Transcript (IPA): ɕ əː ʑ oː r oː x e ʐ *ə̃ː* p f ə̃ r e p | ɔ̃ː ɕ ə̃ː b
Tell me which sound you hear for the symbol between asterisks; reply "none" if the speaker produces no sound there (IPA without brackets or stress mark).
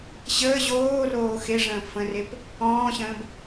ə̃ː